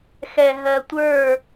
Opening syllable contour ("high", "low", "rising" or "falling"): low